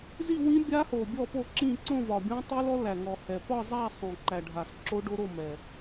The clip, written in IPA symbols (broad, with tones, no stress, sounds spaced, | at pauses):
z i˥˧ w ĩ˦˥ bʲ a˦˥ h o˨˩ bʲ ɔ˥˧ p o˥˧ ǁ ĩ˥˧ ǀ õ˥˧ v ɒ˨˩ bʲ õ˦˥ tˤ i˦˥ l ɔ˦˥ l æ˨˩ ŋ ɔ˨˩ h ɛ˨˩ p ɒ˥˧ zˤ æ˥˧ sˤ õ˨˩ ǃ æ˨˩ ɖʱ a˨˩ x ǁ o˦˥ ɖ o˦˥ ɾ o˥˧ m ɛ˨˩